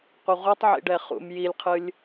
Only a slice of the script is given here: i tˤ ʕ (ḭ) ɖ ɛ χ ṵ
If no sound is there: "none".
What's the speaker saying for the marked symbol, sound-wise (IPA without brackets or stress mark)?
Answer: ḭ